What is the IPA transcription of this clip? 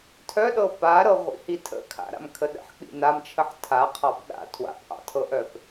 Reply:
tʰœɗɤ paɾɤʁʷḭhi tʰə̰ kʰa̰ɾa̰mkʰə ɗə̰ħk͡pḭ namt͡ʃʰəħ tʰaqʰɑp ɗa̰ tʰwa̰pʔɑ̰tʰɤʔœp

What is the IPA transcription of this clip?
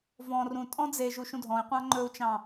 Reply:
vɔ̃ rũtʼɔ̃ d͡zeʒu ʃũdʱɔ̃i̯ qʷɑ̃ŋ͡ǃɵu̯t͡ʃɑ̃

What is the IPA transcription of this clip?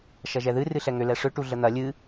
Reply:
ʃɐʒɛðɨ rɨɬɛŋʏ lɛʂʏ ʈuɮən̪ɐ lʲɨ

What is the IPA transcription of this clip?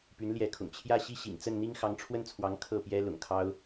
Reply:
py˧˥nljɛ˧˥kʰʊ̰˨˩ŋ t͡ɕʰjä˥˧ ɕi˥˩ɕḭ˨˩ŋt͡sə˥˩n n̪i˥ŋxɑ˧˥ŋʈ͡ʂʰwə˥˩nt͡sʰwɑ˧˥ŋ kʰɤ˥˩pjɛ˥ lʊ̰˨˩ŋkʰɑ˥ʊ̯

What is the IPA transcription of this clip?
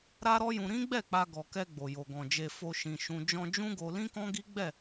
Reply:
ɾa˦ɾɔ˦jũ˧ ɾĩ˦ɡ͡bɛ˦˨ k͡pa˧ɡɔ˨kɛ˧ ɡ͡bo˨jo˨ɡɔ̃˨d͡ʒe˧ fo˧ ʃĩ˨ʃũ˧ d͡ʒɔ̃˧d͡ʒũ˦ɡo˧ lĩ˦kɔ̃˦ɡi˦ ɡ͡bɛ˦˨

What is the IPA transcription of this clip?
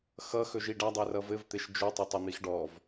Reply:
xʌ xɵʒiɖadˤɛ rʌvɘvt̪eʃ d͡ʒɵtˤɘtˤɘ n̪ixɖɔv

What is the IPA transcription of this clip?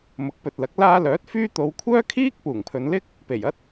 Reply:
mʊ˨˥k̚pɵ˨t̚lɐ˨˥k̚ laː˧ lœː˨˥t̚fyː˥ t̪o˨˧wkʷʰœː˥kʰiː˥k̚ puː˨˩ŋpʰɵ˨˧nlɪ˥k̚ | pe˨˩jɐ˥t̚

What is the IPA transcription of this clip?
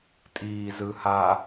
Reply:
tʼiːzɯha

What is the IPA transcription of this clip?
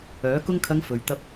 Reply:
œː˨˥ kʊ˧ŋkʰɐ˨˧ŋ fɵ˨ɥ t̪ɐ˧p̚

